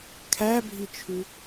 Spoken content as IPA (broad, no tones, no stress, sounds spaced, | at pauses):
kʰ æ bʱ i t͡ʃʰ ʉ